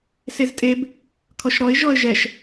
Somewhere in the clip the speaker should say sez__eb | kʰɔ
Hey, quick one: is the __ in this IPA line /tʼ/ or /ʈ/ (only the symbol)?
tʼ